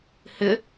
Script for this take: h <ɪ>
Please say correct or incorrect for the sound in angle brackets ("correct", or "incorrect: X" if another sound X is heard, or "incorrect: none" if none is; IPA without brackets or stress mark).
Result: correct